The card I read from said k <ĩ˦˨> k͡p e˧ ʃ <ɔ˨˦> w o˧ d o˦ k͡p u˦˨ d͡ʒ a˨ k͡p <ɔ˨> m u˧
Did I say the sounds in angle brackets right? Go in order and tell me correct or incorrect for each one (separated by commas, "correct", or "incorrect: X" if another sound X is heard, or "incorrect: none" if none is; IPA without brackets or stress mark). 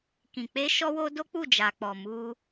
incorrect: ĩ˨, incorrect: ɔ˧, correct